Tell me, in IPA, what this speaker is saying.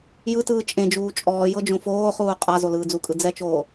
j ɯ t ɯː t͡ʃʼ ẽ d͡ʒ uː t͡ʃʼ ɔː j ɤ d͡ʒ õ f oː χ uː qʼ a z o l ɯː d͡z u kʼ ɯ d͡z ɛ t͡ʃ oː

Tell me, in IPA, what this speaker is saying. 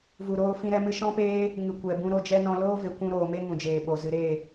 v u˨ ɾ oː˧ f ĩ˧ ɾ ɛ˧ m ɨ˧ ʃ ɔ̃˦ p eː˦ | ŋ ɨ˨ kʷ ɛ˨ b ũ˧ ɾ o˧ d͡ʒ ɛ˦ n ɔ̃˧ l oː˦ v e˨ kʷ ũ˧ ɾ oː˨ m e˦ ŋ ũ˨ d͡ʒ eː˨ ɓ o˨ z ɨ˨ ɾ eː˦˨

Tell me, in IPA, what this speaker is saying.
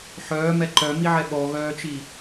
ħ œː m ɛ ǃ œ m i ʕ ɛ ɓ ɔ ɣ œː t͡ʃ i

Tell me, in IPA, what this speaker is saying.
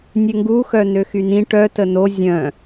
nʲ ø ŋ ɡ u x œ n ø x y n ĩ ʈ œ t ə n o zʲ œ̃

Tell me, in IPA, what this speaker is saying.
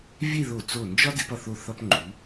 vʲ e˥˧ ð o˧˩ t͡s o˧˩ n d͡ʒ ɒ˥ d e˧ p ɒ˧˩ θ o˧˩ θ ɒ˧ p ŋ͡ǃ u˩˧

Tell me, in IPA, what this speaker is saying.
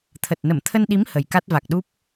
t̪ʰ ə˨˩ t̚ n ə˧˩ m t̪ʰ ə˧ n ɗ i˨˦ m h ə˨˩ j k a˦˥ t̚ v a˨˩ k̚ ɗ u˦˥ p̚

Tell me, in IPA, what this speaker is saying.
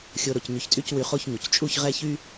xʲ o˧ ɾ o˩˧ c ɲ y˧ ç tʼ y˥˧ c w y˧ χ o˥˧ ç ɲ u˩˧ c t͡ʃʼ u˥˧ ç ʁ ɛ˥˧ ç y˥

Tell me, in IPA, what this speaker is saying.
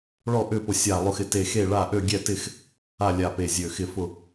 ɭ ɔ˥˨ ʔ ʏ˥˨ p ʊ˧˩ sʲ a˧˩ lˠ ʊ˧˩ x ɪ˧˩ t e˧˩ x e˥˨ ɭ a˥˨ ʔ ø˥˨ ɡʲ ɛ˥˨ t ɪ˥˨ x | a˥˨ lʲ a˧˩ p e˧˩ zʲ ø˧˩ x ɪ˥˨ f ʊ˥˨

